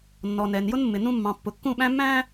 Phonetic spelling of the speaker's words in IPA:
nː ɔ˨ n ɛː˨ n j ʊ˦ n mː ɪ˨ n ũ˦ mː ɑ̃˨ pː ʊ˨ kː ũ˦˨ ɓ æ̃˦ mː æ̃ː˦

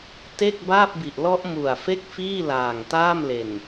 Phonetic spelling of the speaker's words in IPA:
t e˥˩ k̚ b aː˥˩ p̚ b i˨˩ ʔ l ɔ˦˥ ʔ m u˨˩ a̯ f e˥˩ k̚ f iː˥˩ l aː˨˩ ŋ t aː˥˩ m l e˨˩ n

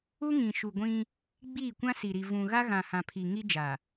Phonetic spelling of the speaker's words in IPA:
u˦ ŋ ĩ˨ ʃ u˨ ɡʷ ĩ˦ | ɡ͡b iː˦˨ kʷ ã˦ s i˨ ɾ i˨ v ũ˨ ɣ a˦ ɣ ã˨ h ã˨ pʰ i˨ ŋ i˦ d͡ʒ a˨

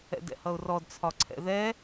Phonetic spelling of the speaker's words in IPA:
ɛ̰ d ɛ̰ h ʌ ʊ̯ r ɔ d t͡sʰ ɒ ǀʰ ɛ̰ ð ɛ

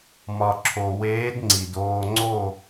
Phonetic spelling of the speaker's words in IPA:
m ɒ˩ ǁʰ o˩ w eː˧˥ d ŋ͡ǀ i˩ d oː˧ ŋ͡ǀ o˥˨

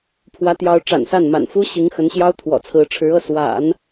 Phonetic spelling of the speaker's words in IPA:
pʰ w ä˧˥ t̪ j ɑ˧˥ ʊ̯ ʈ͡ʂ a̰˨˩ n s a˥˩ n m a̰˨˩ n f u˥ ɕ i˧˥ ŋ x ə˧˥ n ɕ j ɑ˥ ʊ̯ t̪ʰ w ɔ̰˨˩ t͡sʰ ɹ̩˧˥ ʈ͡ʂʰ ɻ̩˧˥ ɤ˥˩ s w a̰˨˩˦ n

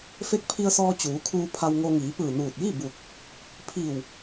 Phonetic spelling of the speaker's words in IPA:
f e˧˥ k̚ pʰ i˧ ə̯ s ɔː˧ t͡ɕ uː˩˧ kʰ uː˧ pʰ a˧ w ŋ o˧ ŋ iː˩˧ p ɯː˧˩ n uː˧˩ t̚ j i˥˨ b u˧˩ k̚ | pʰ i˧˩ w

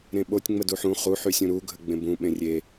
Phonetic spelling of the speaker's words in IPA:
ɾ ẽ ɓ o tʲ ŋ͡m ə d u ħ ũ χ u ħ y sʲ ũ ɾ u ɡʱ ə ɡ͡b ẽ b ũ ɓ ẽ rʲ e

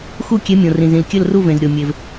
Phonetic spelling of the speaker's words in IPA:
x u˦˨ kʲ e˨˦ mʲ õ˩ r ĩ˩ z ĩ˩ l kʲ ɘ˦˨ l r u˦˨ v ẽ˩ z ɾʲ o˩ mʲ e˩ v

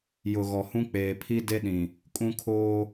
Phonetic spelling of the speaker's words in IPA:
j ʊ˨ ɣ ɔ˨ h ũ˦ k͡p eː˨ pʰ i˦ d e˦ ɗ ĩ˨ | kʼ ũ˦ kʰ oː˦

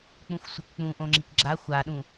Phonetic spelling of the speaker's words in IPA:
k͡p ũ xʷ sʷ ɘ k k͡p ũ ʔ õ ŋ͡ǁ i k ɡ͡ǁ a xʷ a ɗ ũ

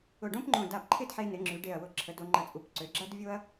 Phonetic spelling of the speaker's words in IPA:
ʊ˧˩ ɖ õ˥ p ŋ͡ǃ õ˧˩ d a˧˩ p ǃʰ ɪ˥˧ d ħ e˧ n ɪ˩˧ ŋ͡ǁ y˩˧ ɖ e˧˩ ɐ̯ w ʊ˧˩ ǁʰ ə˩˧ d o˩˧ ŋ͡ǃ ɐ˧ t͡sʼ u˧˩ p ǀ ø˩˧ ɡ͡ǁ ɐ˥ d vʲ o˥ ɐ̯

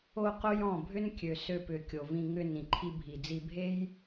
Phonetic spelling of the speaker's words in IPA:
o˦ q o˦ j ɔ̃˦˨ bʱ ʏ˦ n kʲ ø˨ s ø˧ p ʏ˨ kʲ o˨ v ĩ˧ ŋ ʏ˧ n ĩ˨ ǃʰ i˧ bʱ i˨ d͡z i˧ bʱ e˦ j

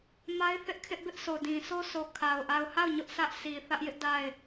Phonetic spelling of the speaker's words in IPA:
m a˦ ɪ̯ θ ɪ˦ ʔ kʰ ɪ˦ ʔ b ɪ˦ ʔ sʰ o˨ d ĩ˨ s o˦ s o˨ kʰ a˨ ʊ̯ ʔ a˨ ʊ̯ h a˦˨ ʊ̯ ɲ ʊ˦ ʔ s ä˦ ʔ sʰ i˨ θ ä˦ ʔ j ɪ˦ ʔ d a˦˨ ɪ̯

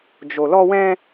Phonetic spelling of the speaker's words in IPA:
d͡ʒ o˨ l ɔ˧ w ɛ̃˧

